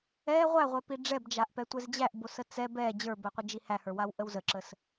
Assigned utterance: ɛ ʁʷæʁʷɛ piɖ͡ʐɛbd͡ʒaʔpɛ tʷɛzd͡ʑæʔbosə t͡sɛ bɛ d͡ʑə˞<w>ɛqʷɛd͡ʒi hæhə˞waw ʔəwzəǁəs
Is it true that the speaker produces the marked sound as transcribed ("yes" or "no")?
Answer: no